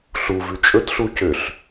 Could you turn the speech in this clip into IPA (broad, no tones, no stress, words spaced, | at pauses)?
ɬuvʉ t͡ʃʼɵtɬu cøɬ